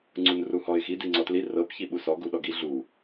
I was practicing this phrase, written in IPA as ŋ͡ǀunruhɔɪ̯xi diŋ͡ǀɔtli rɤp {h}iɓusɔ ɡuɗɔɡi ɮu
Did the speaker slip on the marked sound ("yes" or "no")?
yes